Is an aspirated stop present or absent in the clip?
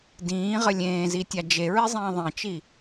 absent